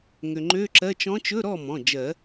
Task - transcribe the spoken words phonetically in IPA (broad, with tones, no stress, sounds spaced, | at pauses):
ŋ ø˩ ŋ͡ǃ ø˧˥˧ ǁ ɜ˧˥˧ t͡ʃ ɔ̃˧˥ t͡ʃ ɵ˧˥˧ ɾ ɔ˥˩ m ɔ̃˩˧˩ d͡ʒ ɜ˨˩˦